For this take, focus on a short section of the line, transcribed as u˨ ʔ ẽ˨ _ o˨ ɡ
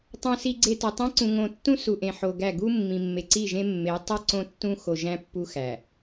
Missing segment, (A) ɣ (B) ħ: B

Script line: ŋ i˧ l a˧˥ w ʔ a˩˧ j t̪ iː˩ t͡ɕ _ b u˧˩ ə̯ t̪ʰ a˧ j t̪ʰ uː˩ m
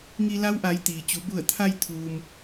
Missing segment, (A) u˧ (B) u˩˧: B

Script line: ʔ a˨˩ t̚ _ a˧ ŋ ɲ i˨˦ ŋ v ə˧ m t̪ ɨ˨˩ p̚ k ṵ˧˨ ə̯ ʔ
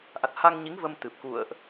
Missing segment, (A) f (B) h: B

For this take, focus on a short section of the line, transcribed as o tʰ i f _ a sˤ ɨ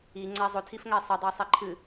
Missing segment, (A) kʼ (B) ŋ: B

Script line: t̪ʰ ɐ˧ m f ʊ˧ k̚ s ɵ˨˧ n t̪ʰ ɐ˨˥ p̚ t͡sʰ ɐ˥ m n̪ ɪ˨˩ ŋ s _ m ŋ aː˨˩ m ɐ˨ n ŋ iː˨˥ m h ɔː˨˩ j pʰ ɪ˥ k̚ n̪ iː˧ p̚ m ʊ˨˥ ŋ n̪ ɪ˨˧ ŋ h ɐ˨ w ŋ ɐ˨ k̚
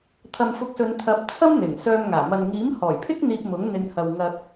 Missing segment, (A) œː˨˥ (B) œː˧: B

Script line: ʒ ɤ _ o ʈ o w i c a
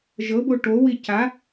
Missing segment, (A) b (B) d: A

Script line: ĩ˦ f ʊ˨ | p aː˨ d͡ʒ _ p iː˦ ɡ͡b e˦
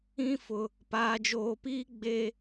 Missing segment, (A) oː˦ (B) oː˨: B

